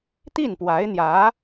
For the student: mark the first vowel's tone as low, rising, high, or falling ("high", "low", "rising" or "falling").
falling